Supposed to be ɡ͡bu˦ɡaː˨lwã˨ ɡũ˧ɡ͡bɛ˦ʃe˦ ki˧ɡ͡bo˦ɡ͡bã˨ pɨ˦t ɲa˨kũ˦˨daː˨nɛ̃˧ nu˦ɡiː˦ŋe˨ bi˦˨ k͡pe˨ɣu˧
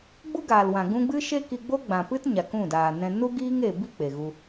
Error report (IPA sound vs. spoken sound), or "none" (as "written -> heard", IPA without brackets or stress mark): ɛ˦ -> ɨ˦